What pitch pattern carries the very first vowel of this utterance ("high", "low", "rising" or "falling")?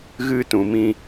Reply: high